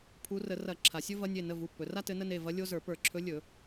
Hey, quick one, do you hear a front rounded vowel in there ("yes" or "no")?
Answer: no